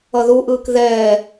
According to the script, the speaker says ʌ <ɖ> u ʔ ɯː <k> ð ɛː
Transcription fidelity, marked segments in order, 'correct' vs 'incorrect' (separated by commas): incorrect, correct